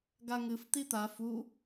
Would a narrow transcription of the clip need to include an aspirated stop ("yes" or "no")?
no